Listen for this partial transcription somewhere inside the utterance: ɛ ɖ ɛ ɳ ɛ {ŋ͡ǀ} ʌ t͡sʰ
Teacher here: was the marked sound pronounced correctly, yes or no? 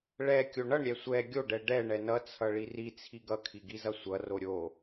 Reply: no